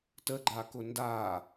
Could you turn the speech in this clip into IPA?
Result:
t ə ɡ͡ǃ a k ʊ n d a

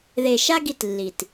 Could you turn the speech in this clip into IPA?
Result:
ð e˨ ʃ a˦ ɡ i˧ t lː i˨ t

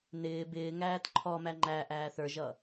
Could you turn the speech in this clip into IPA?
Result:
n ɪː b ɪː ŋ æː t ǃʰ ɔ m æ ŋ͡ǃ æ ʔ æː θ ə˞ ʒ ʌ

